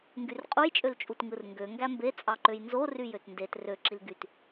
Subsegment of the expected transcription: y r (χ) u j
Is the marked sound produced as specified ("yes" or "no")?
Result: no